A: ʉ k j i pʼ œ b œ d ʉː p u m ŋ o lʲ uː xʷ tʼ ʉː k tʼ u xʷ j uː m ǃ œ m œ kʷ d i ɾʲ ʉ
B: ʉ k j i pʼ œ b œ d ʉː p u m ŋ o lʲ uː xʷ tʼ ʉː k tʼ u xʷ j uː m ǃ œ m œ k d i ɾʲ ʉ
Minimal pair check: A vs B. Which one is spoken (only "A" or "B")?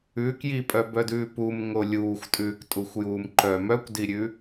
A